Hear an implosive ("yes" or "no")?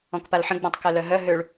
no